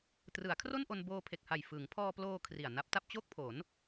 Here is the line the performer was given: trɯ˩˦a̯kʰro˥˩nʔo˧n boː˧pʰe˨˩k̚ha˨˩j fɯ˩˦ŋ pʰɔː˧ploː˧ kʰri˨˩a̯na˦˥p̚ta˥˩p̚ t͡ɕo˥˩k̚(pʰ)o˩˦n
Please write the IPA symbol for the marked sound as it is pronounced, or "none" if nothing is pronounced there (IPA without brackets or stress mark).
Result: pʰ